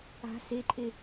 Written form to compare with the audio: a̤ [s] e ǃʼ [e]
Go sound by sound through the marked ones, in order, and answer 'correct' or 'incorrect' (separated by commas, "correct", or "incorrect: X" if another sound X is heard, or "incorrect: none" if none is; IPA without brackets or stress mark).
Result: correct, correct